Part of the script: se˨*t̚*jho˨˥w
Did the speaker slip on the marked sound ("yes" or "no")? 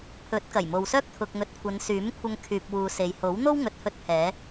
yes